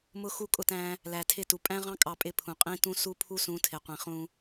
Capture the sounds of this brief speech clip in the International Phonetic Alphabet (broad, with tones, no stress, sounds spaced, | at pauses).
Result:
m ʊ˦ x u˦ kʼ ʊ˦ t æ̃˦ | l æ˨ tʰ ɪ˦˨ t u˨ pʼ æ̃˦ ʁ ɑ̃˦ kʼ ɑ˦ pʼ ɪ˦ pʰ ũ˨ qʼ ĩ˦ t ũ˦ s u˦ pʰ u˦ s ũ˨˦ tʰ ɪ˨ qʷ ĩ˨ χ ũ˦